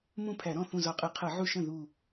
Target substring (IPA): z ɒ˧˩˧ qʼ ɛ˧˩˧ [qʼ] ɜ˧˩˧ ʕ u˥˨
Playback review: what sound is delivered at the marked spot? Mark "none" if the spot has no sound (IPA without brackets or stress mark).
qʰ